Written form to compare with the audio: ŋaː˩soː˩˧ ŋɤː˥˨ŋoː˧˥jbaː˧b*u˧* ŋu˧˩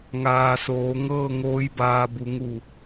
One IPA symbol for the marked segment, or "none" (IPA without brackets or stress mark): u˩˧